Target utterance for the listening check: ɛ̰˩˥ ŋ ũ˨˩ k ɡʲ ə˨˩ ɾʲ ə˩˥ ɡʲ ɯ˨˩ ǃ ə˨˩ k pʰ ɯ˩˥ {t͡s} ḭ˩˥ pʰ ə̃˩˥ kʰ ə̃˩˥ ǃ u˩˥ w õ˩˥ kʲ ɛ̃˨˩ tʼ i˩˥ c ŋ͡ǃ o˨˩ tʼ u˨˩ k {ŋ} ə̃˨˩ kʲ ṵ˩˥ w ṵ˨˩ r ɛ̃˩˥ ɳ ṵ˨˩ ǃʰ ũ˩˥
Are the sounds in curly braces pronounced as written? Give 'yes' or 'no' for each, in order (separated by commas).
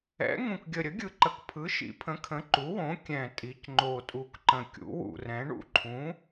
no, no